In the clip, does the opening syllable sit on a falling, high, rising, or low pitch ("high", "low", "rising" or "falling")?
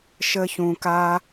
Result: high